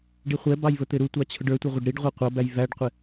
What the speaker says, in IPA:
ɖ i χʷ ɛ b ɑ j v ə t̪ ɪ ɾ u tʷ ɑ t͡ɕʰ ʊ ɖ ə˞ tʷ ɛ ʁʷ ʌ ɖ ɾ i ɖ ʁʷ i qʷ ʌ b æ j v æ ɖ qʷ ɪ

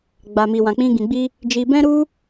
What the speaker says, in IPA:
ɡ͡b a˨ m i˨ w ã˨ k͡p ĩ˧ ɡ ĩ˨ ɡ͡b i˧ | d͡ʒ i˧ b ɛ̃˦ ɾ u˦

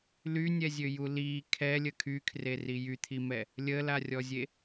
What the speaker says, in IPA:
l y nʲ ɛ zʲ ø j u l i kʰ ɛ lʲ ə kʰ y kʰ r e r i j y t̪ʰ i m ɛ | lʲ ə l a rʲ ɔ zʲ e

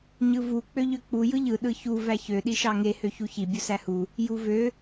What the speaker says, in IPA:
ɲ ɯ v u k͡p ø ʎ ø k͡p u j ɯ ʎ ɯ ɗ ɯ ç u v æ ç ø ɗ i ʃ ɑ ŋ e h ø ç u ç i bʲ u s æ h u | j u v ø

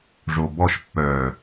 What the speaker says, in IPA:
ʐ o b ɔ ʃ pː œː

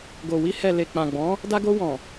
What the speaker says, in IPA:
ɡ o˨ w i˧ h ɛ˨ l e˨ k͡p ã˨ ɡ͡b ɔ̃˨˦ | d a˧ ɡ o˧ w ɔ̃˨

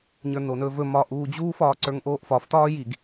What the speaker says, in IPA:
ɲ ə˞ n o n ɵː v ɵ m ɒː ʔ uː d͡ʑ uː f ɒː ǀ ə˞ ŋ ʔ oː ʔ f ɒ f t ɒː j i ɡ

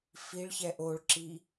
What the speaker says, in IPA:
f i ɭ ç ɛ ʔ o ɭ ǁ i

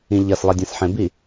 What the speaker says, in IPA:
ĩ ʎ ʌ s lˠ i dʲ ã s ħ ẽ b i

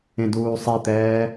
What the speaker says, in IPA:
ẽ d uː sˤ i t̪ ɛː

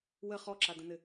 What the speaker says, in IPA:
w ə χ ɔ ǁ a d ə̃ n ɘ

